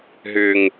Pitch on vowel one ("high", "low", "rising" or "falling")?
low